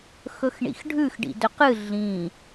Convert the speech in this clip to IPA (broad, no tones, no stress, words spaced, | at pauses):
xɵxɳḭxɖʱʉx ɖḭdɵqɨ ɮĩ